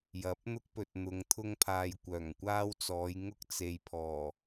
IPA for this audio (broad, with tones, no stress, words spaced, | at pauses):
jɐ˨˥p̚n̪ʊ˥k̚pɵ˨t̚n̪ʊ˨˧ŋ t̪ʰʊ˥ŋpʰaː˧jkʷœː˨˩ŋkʷaː˥w t͡sɔː˨˧j ŋʊ˥k̚ t͡se˨jpʰɔː˨˩